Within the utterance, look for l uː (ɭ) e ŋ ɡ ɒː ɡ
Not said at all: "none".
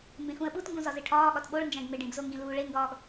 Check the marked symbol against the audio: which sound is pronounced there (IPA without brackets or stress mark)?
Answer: ɭ